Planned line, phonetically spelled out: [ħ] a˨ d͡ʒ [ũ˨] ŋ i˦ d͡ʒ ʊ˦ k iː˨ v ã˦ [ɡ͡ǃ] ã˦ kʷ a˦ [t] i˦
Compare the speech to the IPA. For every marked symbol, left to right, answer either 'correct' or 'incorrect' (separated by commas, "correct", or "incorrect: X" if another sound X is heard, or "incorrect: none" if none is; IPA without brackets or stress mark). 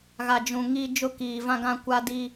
incorrect: ɣ, correct, incorrect: ɡ, incorrect: d